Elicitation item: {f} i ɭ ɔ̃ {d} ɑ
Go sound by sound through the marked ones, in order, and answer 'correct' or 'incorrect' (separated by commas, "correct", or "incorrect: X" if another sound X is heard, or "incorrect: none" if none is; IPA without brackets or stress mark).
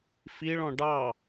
correct, incorrect: ɖ